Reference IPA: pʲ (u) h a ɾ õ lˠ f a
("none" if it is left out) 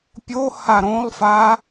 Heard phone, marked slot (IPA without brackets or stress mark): o